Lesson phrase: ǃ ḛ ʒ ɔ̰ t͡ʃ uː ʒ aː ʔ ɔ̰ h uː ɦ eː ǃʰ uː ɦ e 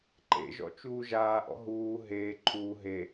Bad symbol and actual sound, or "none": h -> ɦ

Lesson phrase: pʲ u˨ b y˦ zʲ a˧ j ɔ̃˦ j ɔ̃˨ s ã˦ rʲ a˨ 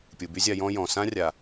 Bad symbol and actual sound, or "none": none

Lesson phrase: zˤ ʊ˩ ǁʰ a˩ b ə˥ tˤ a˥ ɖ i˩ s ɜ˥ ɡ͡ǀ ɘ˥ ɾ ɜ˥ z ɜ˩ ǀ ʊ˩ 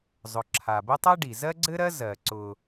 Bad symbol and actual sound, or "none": s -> z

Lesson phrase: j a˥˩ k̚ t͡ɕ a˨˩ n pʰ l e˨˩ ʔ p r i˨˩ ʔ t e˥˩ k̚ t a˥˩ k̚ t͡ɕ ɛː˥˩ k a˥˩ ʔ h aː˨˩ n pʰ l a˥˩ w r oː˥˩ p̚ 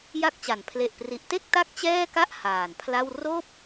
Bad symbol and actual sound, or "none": none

